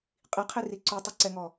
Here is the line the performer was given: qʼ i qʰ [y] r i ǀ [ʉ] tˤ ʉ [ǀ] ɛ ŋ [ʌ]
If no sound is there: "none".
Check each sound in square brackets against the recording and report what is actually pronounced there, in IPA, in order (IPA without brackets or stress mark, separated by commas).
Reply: i, u, ǀ, ɔ